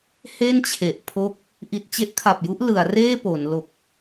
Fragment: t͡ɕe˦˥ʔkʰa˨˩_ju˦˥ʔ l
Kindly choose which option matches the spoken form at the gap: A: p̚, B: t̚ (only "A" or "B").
A